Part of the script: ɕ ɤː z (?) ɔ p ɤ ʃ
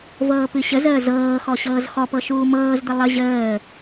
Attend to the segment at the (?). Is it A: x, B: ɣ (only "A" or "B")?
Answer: A